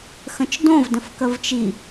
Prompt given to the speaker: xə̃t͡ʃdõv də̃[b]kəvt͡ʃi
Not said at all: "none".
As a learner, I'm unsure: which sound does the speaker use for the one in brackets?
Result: f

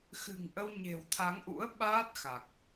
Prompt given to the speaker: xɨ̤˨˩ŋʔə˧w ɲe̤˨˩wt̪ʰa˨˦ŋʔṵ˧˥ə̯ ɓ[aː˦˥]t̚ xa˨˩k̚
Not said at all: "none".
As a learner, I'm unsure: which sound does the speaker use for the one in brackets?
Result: aː˦˥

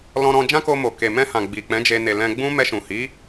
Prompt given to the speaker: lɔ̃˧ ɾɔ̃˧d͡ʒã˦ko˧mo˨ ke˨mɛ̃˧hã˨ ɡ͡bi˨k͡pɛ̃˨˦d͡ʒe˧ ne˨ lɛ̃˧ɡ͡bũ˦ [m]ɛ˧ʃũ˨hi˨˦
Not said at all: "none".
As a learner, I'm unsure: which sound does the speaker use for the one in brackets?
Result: m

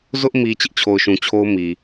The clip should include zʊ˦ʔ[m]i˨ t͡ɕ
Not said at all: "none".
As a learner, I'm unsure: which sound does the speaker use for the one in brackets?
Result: m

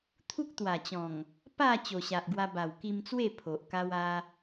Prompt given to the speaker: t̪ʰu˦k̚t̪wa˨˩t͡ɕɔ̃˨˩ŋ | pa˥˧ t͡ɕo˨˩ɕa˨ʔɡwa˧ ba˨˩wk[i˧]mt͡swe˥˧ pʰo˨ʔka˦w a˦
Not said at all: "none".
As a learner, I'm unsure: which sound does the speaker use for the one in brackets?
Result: i˧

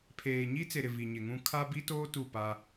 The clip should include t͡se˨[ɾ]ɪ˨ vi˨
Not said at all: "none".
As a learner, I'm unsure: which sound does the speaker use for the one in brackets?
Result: ɾ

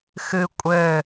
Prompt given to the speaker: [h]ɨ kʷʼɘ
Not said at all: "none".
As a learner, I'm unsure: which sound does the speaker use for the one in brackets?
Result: x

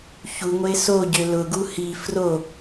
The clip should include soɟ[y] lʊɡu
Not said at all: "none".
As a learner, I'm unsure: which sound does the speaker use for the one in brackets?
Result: ø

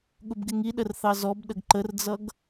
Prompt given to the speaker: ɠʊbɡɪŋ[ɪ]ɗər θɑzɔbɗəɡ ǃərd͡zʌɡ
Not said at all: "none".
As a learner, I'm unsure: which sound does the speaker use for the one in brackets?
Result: i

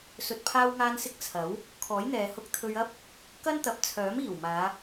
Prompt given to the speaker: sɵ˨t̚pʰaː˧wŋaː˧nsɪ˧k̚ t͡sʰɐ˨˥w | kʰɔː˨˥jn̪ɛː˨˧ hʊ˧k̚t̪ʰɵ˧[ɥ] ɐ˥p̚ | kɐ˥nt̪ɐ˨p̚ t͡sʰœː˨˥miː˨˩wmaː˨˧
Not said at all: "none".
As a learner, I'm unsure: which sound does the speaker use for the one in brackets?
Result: ɥ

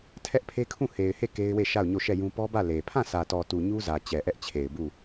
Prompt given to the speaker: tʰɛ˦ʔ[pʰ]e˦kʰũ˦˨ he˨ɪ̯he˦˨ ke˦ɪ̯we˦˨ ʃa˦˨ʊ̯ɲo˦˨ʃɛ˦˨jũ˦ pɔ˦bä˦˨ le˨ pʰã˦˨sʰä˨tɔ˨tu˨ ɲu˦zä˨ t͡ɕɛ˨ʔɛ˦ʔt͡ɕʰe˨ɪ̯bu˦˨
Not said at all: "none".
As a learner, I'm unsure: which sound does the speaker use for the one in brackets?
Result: pʰ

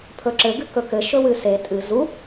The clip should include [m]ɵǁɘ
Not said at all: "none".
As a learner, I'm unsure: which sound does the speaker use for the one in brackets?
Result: pʰ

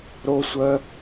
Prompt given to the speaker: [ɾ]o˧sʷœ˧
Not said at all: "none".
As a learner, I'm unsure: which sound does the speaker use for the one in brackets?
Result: ɾ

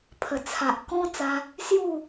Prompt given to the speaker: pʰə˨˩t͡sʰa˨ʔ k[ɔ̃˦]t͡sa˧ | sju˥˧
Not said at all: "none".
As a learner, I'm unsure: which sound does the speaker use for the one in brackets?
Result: ɔ̃˦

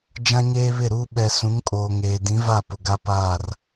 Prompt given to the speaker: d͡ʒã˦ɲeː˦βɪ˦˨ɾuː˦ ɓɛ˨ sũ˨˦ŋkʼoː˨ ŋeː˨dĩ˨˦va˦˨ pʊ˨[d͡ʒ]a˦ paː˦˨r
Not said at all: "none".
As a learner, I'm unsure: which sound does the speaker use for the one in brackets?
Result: ɡ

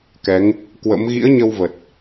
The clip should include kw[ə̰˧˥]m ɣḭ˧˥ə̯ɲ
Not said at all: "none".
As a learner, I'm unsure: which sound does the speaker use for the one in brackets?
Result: ə̰˧˥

